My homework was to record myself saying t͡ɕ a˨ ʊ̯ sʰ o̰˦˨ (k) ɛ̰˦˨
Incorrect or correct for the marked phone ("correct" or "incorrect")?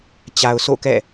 correct